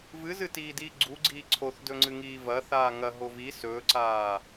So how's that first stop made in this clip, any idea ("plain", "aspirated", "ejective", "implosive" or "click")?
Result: plain